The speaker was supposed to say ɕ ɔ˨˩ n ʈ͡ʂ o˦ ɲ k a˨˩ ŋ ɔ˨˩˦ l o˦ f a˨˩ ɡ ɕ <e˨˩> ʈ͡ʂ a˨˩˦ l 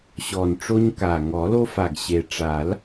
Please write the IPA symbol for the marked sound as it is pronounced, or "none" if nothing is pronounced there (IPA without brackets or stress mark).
e˨˩